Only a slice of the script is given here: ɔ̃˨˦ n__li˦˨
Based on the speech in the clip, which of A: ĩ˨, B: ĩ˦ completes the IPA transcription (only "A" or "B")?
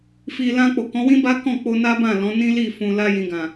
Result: B